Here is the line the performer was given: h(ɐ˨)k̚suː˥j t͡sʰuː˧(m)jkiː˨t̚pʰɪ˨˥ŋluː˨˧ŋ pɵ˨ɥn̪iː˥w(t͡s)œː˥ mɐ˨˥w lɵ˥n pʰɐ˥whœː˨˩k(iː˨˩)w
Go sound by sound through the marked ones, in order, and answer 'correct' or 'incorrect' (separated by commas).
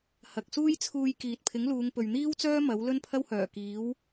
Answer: correct, incorrect, correct, incorrect